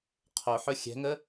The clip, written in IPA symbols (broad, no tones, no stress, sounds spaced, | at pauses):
qʰ o ħ ɵ xʲ ɛ̤ ŋ ə